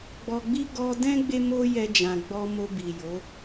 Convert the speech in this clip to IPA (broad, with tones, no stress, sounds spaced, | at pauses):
ɡ͡b ɔ˧ ɡ͡b i˦ ɡ ɔ˧ d ɛ̃˦ ɡ͡b e˦ m o˦ j ɛ˧ d͡ʒ ã˨ ɡ͡b ɔ˧ m o˧ b i˨ j o˨˦